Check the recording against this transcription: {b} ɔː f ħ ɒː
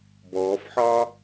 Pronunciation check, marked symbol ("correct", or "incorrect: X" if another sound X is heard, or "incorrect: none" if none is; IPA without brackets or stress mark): correct